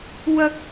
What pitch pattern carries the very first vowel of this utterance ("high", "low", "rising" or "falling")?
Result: high